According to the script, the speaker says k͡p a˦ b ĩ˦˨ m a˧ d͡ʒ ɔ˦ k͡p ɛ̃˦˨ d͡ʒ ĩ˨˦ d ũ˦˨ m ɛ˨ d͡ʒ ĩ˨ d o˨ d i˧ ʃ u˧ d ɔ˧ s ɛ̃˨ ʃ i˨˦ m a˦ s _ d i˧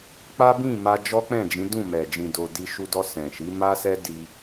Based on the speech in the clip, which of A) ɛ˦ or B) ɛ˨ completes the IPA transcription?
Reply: A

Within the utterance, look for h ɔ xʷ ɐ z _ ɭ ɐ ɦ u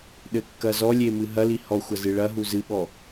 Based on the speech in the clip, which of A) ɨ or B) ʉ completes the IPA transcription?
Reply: A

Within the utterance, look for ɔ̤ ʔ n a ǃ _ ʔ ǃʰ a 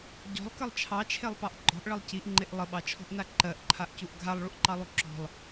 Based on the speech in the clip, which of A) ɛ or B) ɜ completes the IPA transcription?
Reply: B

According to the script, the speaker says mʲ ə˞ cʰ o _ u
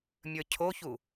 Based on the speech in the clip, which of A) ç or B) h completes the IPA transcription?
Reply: A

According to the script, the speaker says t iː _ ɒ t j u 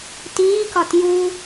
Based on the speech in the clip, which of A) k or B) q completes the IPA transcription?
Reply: A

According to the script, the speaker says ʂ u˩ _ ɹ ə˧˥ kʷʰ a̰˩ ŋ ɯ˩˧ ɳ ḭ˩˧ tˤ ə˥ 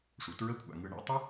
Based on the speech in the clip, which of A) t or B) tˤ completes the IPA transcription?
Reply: A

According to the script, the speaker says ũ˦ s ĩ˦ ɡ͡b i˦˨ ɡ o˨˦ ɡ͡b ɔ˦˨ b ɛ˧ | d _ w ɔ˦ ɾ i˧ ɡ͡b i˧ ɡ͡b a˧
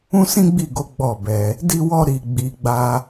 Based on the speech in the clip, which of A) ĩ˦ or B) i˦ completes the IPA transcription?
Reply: B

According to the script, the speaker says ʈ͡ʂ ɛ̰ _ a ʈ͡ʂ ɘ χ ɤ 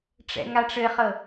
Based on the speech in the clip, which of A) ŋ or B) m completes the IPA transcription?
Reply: A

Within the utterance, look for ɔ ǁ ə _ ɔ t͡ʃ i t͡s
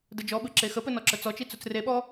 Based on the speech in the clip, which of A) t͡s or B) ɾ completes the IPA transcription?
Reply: A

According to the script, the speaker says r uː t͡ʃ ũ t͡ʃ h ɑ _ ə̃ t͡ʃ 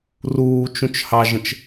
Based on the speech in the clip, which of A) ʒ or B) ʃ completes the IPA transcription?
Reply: A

